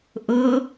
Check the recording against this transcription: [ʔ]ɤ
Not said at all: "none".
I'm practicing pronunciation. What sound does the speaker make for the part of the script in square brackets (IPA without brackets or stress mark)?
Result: ʔ